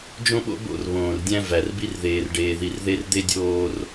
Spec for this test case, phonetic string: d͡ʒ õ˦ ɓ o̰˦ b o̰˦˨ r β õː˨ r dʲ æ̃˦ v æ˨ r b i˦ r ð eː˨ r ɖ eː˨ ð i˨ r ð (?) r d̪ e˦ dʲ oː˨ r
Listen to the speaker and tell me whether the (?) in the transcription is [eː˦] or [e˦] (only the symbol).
e˦